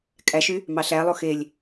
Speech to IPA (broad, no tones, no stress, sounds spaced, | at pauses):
kʼ æ ʃ y | m ɑ ɬ æ lˠ o x e lʲ